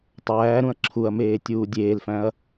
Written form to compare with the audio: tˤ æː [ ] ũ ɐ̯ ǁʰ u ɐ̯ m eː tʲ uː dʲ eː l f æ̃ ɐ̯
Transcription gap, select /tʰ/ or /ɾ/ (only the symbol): ɾ